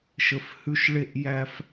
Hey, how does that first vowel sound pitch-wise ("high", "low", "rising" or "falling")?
low